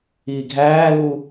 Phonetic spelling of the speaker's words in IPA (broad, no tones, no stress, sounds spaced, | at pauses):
iː ɡʱ æː l u